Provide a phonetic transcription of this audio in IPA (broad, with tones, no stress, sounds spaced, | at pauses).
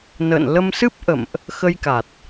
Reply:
n ə̰ː˧˨ n l ə˧ m s ɨ˦˥ p̚ ʔ ə̰˧˨ m ʔ | x ə˧ j k a˨˩ t̚